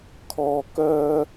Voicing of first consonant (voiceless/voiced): voiceless